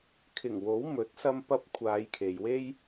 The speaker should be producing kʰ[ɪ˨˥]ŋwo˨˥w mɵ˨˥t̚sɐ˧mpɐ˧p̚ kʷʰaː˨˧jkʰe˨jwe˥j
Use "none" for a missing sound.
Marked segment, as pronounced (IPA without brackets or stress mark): ɪ˨˩